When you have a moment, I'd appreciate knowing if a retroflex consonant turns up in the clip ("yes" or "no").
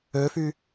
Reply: no